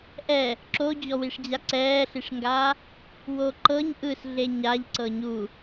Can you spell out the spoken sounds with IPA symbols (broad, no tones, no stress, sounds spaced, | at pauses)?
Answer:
ʔ ɛ | ǁ o d͡ʑ ɔ w i ʂ d͡ʑ a ǀ ɛː ɬ i ʂ ŋ ɡ aː | w o ǃ ɤ ɲ ʔ ɯ s ɮ e ɲ a ʎ ǀ ɤ ɲ u